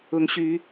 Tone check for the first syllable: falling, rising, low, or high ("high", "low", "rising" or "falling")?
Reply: rising